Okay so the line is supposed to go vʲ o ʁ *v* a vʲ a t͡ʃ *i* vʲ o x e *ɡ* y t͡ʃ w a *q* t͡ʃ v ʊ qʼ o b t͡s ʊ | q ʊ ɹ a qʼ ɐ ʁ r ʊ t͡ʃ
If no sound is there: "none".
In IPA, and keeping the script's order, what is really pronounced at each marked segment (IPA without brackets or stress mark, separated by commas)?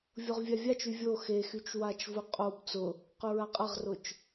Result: vʲ, y, x, none